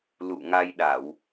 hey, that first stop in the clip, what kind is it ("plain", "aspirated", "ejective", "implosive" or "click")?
implosive